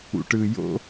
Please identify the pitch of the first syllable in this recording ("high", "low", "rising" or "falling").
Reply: low